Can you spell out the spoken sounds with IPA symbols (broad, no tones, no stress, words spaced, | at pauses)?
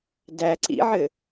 dæ ǀḭʕɘ